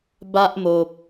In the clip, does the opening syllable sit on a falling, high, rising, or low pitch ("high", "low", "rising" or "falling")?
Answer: high